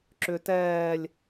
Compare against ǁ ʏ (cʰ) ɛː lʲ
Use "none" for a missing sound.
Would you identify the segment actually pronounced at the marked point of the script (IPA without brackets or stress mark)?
t